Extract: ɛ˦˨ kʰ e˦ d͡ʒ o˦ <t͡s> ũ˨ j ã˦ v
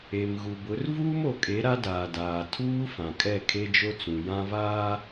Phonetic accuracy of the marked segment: correct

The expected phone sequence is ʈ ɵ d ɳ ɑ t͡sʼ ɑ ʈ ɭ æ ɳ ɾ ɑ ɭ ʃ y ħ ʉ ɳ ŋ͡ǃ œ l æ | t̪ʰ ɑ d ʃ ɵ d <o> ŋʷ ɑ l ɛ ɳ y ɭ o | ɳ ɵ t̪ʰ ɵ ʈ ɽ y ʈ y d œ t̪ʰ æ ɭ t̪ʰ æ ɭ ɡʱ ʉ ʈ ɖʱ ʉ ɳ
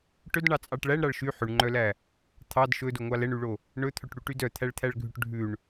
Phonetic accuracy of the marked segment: correct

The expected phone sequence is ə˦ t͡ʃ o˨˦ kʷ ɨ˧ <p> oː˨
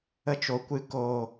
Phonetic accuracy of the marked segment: incorrect: k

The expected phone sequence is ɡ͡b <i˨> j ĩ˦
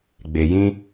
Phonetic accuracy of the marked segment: incorrect: e˨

